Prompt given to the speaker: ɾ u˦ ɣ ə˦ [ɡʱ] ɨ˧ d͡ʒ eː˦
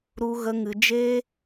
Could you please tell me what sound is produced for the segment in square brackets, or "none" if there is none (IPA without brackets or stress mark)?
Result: ŋ